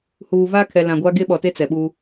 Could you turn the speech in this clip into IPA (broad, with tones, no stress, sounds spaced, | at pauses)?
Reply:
h uː˨ v a˦ kʰ ɛ˨ l ã˨ ɡʷ a˦ ɡ e˦ ɓ ɔ˨ t e˦ t͡s ɛ˨ ɓ u˦